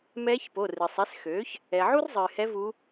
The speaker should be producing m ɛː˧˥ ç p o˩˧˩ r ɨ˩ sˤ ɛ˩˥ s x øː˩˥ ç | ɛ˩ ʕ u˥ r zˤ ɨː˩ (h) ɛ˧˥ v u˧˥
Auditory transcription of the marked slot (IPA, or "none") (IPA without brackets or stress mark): h